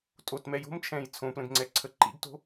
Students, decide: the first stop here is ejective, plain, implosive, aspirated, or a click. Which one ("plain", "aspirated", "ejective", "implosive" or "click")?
ejective